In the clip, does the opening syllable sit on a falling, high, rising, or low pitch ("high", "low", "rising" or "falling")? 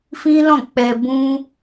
high